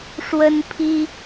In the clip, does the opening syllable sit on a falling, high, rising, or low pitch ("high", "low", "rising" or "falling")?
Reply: high